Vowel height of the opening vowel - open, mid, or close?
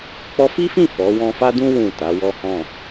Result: mid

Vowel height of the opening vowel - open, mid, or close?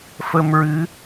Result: mid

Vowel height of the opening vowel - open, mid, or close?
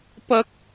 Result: open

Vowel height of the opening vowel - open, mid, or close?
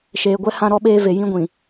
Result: mid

